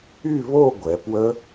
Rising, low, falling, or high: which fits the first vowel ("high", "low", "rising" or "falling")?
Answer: falling